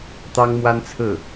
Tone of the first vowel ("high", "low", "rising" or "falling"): high